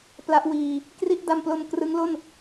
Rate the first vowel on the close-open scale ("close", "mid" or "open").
open